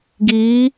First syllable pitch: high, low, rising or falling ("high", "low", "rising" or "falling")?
rising